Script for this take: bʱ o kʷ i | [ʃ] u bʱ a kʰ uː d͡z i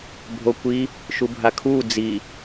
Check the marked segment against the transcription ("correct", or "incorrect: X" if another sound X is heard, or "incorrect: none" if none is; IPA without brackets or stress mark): correct